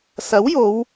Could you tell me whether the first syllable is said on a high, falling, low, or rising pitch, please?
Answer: rising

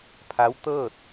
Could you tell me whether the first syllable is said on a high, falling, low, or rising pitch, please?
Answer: rising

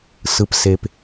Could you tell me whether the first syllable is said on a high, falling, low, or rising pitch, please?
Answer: low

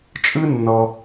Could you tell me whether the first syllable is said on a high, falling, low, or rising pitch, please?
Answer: high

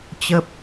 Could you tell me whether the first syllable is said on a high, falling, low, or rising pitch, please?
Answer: high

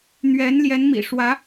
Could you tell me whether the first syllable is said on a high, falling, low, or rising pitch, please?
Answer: rising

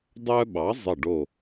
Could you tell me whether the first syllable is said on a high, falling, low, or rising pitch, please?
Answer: high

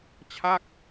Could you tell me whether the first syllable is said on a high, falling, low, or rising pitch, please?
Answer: falling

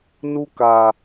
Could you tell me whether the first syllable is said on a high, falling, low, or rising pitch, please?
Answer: high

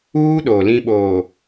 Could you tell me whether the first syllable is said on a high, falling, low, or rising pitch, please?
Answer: high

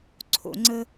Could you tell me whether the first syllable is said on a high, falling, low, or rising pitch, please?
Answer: low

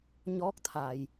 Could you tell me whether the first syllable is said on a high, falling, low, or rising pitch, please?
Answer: rising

